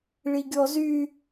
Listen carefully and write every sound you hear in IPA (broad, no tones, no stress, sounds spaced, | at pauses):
ɭ i ɡʲ ɔ z y